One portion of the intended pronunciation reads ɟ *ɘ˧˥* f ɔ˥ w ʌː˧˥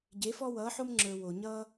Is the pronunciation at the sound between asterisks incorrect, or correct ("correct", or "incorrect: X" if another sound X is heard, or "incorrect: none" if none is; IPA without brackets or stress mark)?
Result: incorrect: e˧˥